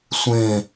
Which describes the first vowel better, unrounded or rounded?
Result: unrounded